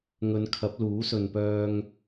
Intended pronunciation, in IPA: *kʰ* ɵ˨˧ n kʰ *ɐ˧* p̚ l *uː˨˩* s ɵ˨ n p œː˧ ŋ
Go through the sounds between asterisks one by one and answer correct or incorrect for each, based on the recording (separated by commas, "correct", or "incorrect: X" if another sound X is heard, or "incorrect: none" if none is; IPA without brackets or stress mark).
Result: incorrect: ŋ, incorrect: ɐ˨˥, incorrect: uː˨˥